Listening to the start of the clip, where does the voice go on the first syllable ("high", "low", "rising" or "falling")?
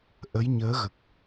rising